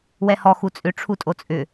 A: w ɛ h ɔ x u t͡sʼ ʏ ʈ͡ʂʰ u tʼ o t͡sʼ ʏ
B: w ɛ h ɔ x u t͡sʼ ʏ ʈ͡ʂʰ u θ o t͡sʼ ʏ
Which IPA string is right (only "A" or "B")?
A